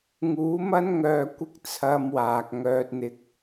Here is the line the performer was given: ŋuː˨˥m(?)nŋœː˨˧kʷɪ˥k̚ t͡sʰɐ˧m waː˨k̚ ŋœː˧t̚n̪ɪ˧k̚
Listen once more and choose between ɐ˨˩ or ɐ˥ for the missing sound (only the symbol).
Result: ɐ˥